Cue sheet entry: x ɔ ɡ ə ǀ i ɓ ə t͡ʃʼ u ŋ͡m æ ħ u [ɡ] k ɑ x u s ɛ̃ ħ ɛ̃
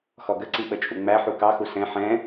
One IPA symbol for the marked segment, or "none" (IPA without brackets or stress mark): none